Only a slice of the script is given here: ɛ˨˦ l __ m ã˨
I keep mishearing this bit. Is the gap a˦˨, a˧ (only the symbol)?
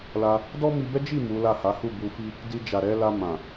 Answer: a˧